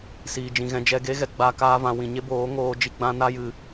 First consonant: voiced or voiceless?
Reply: voiceless